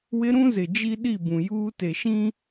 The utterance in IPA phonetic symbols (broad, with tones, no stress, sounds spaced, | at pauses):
w ɪ˦ ɾ ũ˦ z ɪ˨ d͡ʒ i˦ ɗ i˦˨ b ũ˨ j uː˦ t e˨ ʃ ĩ˦